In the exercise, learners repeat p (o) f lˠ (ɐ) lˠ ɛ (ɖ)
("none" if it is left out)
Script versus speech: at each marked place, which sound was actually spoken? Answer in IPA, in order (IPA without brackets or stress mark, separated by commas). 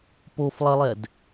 o, ɐ, d